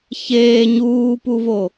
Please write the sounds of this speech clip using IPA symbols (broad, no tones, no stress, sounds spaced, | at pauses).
ç eː ɲ uː p u v o